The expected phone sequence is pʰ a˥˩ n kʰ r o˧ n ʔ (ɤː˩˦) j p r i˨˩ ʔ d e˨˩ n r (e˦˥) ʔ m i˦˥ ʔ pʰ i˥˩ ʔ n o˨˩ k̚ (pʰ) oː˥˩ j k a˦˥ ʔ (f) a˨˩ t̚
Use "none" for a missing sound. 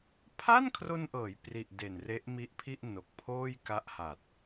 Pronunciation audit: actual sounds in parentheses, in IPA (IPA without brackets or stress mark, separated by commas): ɤː˩˦, e˦˥, pʰ, h